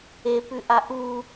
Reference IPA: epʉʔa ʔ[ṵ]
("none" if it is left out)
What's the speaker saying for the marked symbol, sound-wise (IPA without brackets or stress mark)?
u